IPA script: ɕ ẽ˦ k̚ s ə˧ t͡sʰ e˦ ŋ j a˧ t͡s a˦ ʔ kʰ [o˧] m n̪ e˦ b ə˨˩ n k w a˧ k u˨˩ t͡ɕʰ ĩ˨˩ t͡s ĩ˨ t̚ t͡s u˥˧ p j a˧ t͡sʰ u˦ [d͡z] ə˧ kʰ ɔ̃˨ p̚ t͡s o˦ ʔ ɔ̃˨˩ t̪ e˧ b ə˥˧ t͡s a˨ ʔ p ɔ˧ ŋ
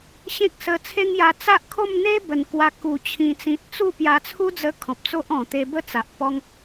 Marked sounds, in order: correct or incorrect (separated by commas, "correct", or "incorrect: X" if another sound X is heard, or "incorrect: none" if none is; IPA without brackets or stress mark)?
incorrect: o˥˧, correct